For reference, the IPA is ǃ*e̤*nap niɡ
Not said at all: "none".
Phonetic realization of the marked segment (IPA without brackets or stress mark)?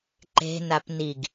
e̤